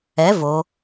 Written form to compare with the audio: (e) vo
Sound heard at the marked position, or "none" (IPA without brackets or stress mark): ɛ